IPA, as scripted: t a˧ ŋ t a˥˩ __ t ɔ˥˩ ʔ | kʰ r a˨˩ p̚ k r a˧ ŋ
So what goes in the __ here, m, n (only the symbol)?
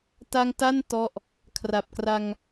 n